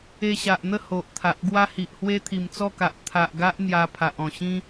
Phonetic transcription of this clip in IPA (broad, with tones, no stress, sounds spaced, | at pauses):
e˧ ɕ a˨ ʔ n̪ ə˥˧ h o˨ ʔ t̪ʰ a˨ ʔ ɡ w a˦ h i˨ ʔ h w e˦ t̪ʰ i˨˩ m t͡s ɔ˥˧ k a˨ ʔ t̪ʰ a˨ ʔ ɡ a˦ ʔ n̪ j a˧ pʰ a˨ ʔ ɔ̃˨˩ ɕ ĩ˦